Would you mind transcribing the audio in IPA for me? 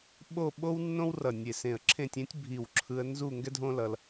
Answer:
ɓ o˥˧ ɓ o˥ w nː õ˥ w r ʌ˧˩ nʲ e˧˩ s ẽ˧˩ ə̯ ǁʰ ẽ˥˧ tʲ ẽ˥ tʲ bʱ i˧˩ w ǁʰ ɯ˧ ə̯ n z u˥˧ ŋ ɡ ɛ˥ dʱ õ˥ l ʌ˧ l

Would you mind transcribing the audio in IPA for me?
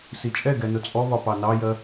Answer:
s i t͡ʃʼ ɛ ɡ ɛ n ʊ t͡sʼ ɔ β ɒ p ɑ n ɑ j ɜ

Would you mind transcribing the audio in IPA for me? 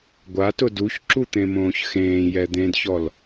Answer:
ɡʷ a t ʊ d u ç ǁ u t̪ ẽ m õː ç x ẽː j ɛ d̪ ẽ d ç ɔ l

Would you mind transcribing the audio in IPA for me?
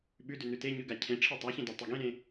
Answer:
ɓ ʉ d ʉ n ʉ t e ɲ ʉ ɡ a cʰ ẽ ʈ͡ʂʰ i tˤ a ç ẽ d a tˤ e ɡ ẽ ɾ ẽ

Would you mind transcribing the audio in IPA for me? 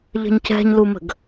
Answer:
ʎ ə̤ ɲ c ɛ̤ ɲ l u m ə̤ ɡ

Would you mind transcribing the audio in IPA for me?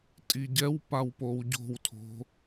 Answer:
tʼ i ɟ ɛ w p a w p o w ɟ o̤ w tʰ o̤

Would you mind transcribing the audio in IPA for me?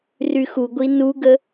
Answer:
r y x u ɡʷ i n u ɡ ə

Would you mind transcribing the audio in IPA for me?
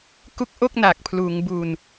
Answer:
k u˦˥ k̚ ʔ o˥˩ k̚ n aː˨˩ k̚ pʰ l uː˩˦ ŋ b u˧ n

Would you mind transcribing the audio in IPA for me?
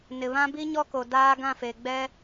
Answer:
n ɪ˨ β ã˦ b i˦ ɲ ɔ˦ k o˨ d aː˦ ɡ ã˦˨ f eː˨ ɡ͡b ɛ˦

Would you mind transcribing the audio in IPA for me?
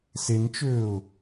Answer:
s e n t͡ʃ øː ʊ̯

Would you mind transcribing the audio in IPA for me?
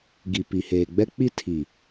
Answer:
ɡ i˨ p i˨ h eː˨ ɡ͡b ɛ˦ k͡p i˦ tʰ i˨

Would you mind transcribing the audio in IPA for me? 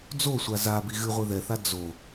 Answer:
d͡z o sʷ a z a b i ɣ ɨ ʁʷ e ð ɛ θ a d͡z o

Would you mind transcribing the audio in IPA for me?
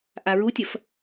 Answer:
ʔ a ɹ u tʲ ɐ f

